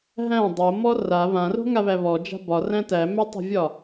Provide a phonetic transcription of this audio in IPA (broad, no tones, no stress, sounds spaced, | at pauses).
ɦ æ̃ dˤ o m ɔ r a β ã r o̤ ŋ a β æ β ɔ d͡ʒ a̤ b ɒ r æ̃ t æ m æ tˤ a̤ vʲ ɒ